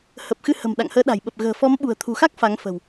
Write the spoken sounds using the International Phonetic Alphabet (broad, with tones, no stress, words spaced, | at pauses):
hə˨˩p̚xɨ˧hə̤˨˩m ɗa̰˧˨ŋhəː˨˦ɗa̤˨˩jɓə˨˩p̚ ɣə̤ː˨˩fɔ˨˦mɓṳ˨˩ə̯ t̪ʰṳ˨˩xa˦˥k̚ fa˨˦ŋfə̤˨˩w